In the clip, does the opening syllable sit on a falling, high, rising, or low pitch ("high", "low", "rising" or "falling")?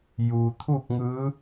low